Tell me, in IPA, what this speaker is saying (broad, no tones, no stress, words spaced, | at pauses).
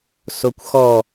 sokʷxɔ